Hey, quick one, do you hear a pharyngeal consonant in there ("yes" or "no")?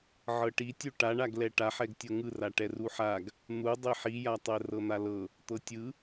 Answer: yes